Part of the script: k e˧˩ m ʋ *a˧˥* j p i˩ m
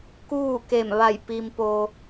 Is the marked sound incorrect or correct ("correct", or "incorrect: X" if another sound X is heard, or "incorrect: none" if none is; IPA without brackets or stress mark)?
incorrect: a˧˩